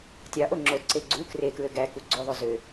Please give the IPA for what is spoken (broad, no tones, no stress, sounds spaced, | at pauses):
tʲ ɑ ʔ o ŋ͡ǁ o t ǀ e ɡ͡ǀ u k r e k ɹ ø ɡ æ k u ɡ͡ǀ o ðˤ ø z ø